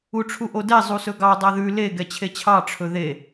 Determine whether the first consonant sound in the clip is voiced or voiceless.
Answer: voiceless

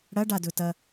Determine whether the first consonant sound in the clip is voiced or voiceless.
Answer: voiced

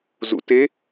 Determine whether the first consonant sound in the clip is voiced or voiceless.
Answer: voiced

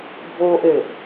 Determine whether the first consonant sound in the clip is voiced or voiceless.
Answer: voiced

